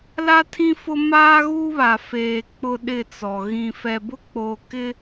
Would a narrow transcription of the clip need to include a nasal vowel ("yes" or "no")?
yes